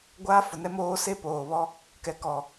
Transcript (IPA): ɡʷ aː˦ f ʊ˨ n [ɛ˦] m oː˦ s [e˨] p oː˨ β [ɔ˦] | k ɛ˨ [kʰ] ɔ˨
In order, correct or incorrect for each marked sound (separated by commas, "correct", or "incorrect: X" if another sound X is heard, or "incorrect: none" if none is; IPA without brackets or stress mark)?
correct, incorrect: e˦, correct, incorrect: k